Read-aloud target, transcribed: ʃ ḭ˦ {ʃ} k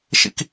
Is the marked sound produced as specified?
no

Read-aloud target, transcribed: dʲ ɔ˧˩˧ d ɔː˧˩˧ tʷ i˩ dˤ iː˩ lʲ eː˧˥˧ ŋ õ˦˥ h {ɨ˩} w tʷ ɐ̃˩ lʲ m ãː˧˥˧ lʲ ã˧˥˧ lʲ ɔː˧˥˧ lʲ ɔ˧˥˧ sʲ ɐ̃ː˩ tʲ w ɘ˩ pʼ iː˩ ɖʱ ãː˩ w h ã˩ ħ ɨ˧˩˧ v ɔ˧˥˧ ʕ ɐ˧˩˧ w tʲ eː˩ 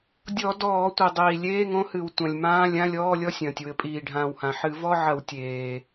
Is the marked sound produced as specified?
yes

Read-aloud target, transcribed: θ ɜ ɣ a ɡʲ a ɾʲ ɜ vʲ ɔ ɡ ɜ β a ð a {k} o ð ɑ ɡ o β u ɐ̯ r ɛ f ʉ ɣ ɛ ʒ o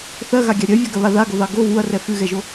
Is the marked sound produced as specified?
no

